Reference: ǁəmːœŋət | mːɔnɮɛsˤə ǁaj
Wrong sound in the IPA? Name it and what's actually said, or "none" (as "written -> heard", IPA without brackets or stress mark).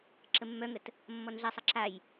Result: none